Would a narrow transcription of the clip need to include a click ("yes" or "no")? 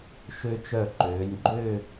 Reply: yes